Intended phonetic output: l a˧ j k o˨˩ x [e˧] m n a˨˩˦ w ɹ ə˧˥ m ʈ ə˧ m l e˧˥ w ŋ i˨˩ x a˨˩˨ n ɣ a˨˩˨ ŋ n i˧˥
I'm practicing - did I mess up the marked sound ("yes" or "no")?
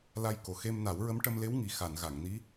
no